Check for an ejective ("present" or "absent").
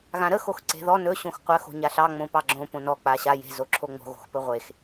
absent